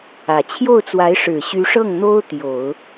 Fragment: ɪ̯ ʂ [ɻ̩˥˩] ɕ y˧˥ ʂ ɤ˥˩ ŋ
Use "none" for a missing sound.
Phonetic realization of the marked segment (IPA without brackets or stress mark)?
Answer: ɻ̩˨˩